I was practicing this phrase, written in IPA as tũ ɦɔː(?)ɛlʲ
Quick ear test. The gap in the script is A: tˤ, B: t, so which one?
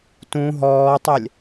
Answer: A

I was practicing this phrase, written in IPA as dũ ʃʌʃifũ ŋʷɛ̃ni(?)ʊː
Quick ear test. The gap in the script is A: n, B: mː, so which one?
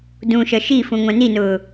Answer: A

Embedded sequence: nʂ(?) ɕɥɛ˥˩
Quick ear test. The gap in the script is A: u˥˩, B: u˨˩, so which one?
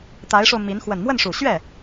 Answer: B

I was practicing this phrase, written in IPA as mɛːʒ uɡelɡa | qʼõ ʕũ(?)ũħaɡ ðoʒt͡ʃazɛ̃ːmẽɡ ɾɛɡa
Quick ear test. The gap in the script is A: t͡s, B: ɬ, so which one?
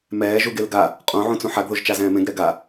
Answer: A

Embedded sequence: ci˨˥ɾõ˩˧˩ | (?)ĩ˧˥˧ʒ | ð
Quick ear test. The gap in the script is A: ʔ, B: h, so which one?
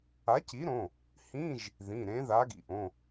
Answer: B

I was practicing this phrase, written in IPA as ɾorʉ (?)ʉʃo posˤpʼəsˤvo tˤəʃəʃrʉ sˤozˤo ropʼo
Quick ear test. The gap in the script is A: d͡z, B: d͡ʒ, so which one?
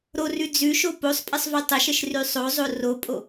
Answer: A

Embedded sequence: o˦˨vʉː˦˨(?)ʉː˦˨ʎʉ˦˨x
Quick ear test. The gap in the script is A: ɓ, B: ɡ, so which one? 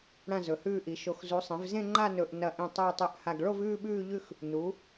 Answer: A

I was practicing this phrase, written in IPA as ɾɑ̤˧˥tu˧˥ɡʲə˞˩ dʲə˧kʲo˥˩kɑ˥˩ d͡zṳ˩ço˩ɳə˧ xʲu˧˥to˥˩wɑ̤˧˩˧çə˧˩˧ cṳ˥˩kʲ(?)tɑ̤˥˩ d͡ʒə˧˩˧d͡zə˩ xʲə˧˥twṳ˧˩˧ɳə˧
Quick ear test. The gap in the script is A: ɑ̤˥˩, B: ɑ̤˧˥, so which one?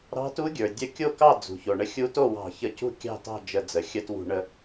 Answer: A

